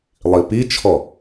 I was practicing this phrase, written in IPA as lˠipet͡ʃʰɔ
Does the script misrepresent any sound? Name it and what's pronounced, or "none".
e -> i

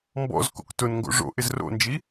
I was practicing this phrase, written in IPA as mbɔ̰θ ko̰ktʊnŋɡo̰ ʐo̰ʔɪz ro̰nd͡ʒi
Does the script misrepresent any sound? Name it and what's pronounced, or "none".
θ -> z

